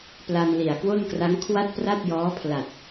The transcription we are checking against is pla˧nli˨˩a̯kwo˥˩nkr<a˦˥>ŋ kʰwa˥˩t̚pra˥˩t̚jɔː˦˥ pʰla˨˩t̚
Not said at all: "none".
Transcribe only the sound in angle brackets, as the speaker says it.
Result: a˦˥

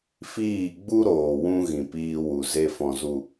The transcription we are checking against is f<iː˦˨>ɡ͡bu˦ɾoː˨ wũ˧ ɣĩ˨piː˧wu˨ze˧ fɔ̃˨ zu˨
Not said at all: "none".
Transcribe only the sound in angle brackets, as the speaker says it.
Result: iː˦˨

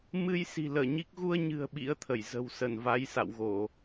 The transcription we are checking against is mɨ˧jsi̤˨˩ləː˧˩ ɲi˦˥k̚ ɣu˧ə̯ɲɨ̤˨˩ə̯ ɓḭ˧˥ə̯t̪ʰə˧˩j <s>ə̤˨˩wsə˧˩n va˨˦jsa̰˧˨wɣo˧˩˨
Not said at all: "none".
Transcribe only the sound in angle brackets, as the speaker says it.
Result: z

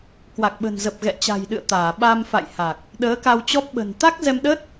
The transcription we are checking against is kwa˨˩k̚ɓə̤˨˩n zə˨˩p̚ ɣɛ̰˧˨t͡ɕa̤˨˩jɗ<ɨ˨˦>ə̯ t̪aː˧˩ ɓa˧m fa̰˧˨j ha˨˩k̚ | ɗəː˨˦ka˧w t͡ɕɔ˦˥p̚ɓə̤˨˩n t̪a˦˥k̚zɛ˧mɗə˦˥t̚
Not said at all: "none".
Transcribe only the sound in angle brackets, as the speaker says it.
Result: ɨ̰˧˨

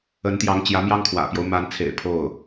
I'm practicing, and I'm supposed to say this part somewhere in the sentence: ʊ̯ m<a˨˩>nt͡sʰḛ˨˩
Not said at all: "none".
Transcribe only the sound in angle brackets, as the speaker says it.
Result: a˧˥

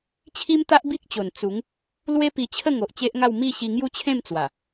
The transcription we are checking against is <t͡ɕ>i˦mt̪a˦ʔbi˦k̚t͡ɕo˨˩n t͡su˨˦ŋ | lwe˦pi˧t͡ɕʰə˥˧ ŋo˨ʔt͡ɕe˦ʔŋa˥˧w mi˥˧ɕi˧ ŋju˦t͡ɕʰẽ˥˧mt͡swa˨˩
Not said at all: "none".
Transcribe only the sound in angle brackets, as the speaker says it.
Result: t͡ɕʰ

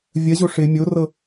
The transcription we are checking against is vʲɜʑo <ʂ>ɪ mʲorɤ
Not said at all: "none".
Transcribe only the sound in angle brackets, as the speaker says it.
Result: ʂ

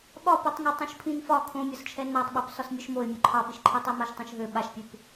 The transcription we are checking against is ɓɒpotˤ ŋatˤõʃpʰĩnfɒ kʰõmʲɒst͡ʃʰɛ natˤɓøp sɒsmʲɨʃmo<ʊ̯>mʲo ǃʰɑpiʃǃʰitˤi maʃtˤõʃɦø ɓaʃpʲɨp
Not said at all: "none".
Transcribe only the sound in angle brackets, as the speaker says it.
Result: ɪ̯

